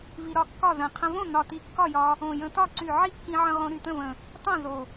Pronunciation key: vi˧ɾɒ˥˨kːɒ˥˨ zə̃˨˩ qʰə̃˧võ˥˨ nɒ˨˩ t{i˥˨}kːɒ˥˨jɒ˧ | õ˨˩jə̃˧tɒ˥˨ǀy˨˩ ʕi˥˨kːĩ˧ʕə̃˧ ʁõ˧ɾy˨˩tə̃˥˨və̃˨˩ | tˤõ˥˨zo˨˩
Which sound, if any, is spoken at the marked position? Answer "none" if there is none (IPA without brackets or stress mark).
i˧